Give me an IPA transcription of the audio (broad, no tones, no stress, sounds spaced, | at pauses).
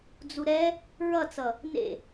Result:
d͡z u ɾ ɛ | ɹ ʌ t͡s ʌ | n ḛ